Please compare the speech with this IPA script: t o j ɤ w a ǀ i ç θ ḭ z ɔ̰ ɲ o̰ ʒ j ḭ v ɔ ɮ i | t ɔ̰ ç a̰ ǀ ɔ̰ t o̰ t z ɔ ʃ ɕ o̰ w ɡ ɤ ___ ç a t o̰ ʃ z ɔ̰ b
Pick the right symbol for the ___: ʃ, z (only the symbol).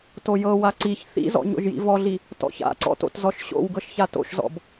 ʃ